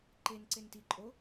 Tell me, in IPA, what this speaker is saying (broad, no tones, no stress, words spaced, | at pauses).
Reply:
ǃen ǀenti ǃʼo